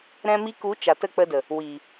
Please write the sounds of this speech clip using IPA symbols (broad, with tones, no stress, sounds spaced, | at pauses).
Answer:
ɾ ɛ̃˧ m i˧ k u˨˦ t͡ʃ a˨ t ə˦˨ k͡p ə˧ d ə˨ | w i˨